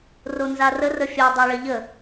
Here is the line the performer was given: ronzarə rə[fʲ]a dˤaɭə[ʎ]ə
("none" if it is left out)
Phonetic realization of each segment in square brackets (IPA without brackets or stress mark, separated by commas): fʲ, ʎ